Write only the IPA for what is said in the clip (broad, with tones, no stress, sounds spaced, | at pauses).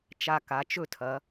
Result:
t͡ʃ a˧ k a˩˧ t͡ʃ ɵ˥˧ tʰ ɐ˩˧